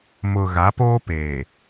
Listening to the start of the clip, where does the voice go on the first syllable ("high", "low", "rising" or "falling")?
low